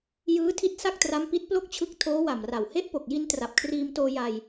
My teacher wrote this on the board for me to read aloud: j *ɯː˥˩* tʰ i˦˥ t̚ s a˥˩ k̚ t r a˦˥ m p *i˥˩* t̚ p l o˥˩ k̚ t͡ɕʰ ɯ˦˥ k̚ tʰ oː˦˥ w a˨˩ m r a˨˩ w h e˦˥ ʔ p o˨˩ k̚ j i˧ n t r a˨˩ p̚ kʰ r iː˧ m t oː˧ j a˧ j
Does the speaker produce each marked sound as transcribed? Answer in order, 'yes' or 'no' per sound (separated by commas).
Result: no, no